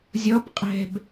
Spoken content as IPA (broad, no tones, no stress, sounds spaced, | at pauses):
zʲ ɔ b qʼ ɛ̤ b